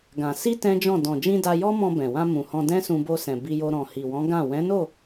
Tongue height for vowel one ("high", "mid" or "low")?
low